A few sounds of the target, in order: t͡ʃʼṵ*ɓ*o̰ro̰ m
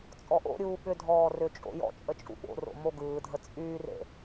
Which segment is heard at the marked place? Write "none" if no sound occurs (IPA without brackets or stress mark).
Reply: ɓ